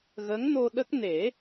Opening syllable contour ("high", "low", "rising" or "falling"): rising